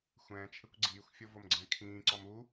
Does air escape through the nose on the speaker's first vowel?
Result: yes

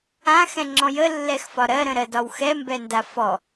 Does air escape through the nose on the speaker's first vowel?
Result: yes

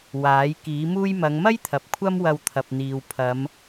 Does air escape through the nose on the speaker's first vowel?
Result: no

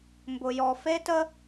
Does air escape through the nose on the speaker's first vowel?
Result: no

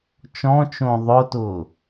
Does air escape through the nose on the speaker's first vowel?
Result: yes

